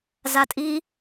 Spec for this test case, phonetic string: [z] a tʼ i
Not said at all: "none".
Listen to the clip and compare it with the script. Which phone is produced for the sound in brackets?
z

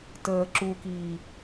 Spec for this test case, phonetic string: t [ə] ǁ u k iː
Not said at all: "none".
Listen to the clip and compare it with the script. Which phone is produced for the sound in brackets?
əː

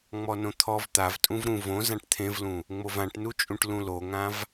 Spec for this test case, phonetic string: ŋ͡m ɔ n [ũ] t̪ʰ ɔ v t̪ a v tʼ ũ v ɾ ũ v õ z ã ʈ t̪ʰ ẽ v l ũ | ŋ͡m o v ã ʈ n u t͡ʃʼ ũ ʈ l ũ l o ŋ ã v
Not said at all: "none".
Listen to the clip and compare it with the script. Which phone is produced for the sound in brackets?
õ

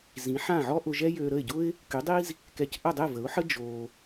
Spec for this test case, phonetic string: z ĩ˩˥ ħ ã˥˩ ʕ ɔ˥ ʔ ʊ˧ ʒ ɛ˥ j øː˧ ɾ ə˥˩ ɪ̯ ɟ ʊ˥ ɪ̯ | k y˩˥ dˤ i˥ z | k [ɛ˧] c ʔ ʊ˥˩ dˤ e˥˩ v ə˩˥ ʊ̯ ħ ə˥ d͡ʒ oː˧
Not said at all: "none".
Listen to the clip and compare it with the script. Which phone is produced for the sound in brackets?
ɛ˧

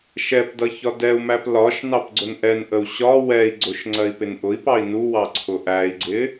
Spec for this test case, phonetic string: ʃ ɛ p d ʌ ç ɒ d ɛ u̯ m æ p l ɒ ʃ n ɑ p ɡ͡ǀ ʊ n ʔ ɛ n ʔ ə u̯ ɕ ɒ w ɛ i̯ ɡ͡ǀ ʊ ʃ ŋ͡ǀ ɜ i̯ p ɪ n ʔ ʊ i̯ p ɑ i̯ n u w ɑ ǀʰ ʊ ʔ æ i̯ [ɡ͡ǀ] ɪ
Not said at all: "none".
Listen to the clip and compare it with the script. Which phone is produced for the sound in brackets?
ɡ͡ǀ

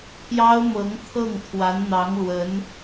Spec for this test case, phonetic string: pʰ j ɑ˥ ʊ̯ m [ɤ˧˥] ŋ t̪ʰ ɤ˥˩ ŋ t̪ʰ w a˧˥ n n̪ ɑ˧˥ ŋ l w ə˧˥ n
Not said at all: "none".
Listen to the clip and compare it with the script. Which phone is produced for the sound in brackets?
ɤ˧˥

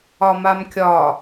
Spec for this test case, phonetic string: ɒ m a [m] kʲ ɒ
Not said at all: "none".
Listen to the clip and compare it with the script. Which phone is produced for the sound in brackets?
m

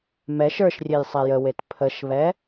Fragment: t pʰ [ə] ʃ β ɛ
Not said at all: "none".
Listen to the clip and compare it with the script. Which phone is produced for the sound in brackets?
ə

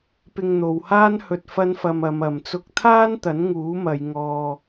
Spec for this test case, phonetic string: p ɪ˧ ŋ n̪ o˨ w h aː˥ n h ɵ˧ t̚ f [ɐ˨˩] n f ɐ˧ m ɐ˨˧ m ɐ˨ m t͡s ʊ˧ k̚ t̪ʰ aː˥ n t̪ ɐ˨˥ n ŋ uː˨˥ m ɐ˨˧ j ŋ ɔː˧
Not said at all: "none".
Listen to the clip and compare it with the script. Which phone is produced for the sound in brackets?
ɐ˥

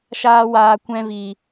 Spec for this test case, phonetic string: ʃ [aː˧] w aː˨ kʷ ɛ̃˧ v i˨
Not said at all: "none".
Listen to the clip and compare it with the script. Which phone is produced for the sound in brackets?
aː˧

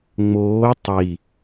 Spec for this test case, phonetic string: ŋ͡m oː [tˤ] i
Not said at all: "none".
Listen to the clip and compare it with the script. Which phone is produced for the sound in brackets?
tˤ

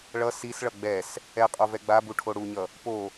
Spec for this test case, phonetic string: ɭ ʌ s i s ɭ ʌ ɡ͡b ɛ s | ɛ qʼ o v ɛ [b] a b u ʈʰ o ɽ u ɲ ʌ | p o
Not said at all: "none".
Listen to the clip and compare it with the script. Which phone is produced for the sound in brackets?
ɡ͡b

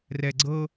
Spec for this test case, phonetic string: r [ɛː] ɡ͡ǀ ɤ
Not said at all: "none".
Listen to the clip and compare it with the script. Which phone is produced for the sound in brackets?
ɛ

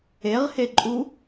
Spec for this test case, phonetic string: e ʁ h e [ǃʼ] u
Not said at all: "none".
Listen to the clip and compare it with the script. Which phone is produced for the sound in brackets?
ǃʼ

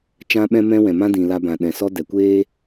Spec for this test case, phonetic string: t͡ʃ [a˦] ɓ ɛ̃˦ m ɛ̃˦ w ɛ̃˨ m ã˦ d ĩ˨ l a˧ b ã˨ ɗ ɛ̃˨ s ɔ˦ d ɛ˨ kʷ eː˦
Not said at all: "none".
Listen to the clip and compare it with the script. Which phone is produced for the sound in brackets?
ã˦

